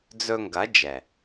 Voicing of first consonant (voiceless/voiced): voiced